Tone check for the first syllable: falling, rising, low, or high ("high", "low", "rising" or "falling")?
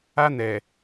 high